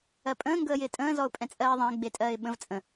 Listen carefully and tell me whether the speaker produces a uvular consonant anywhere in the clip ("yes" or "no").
no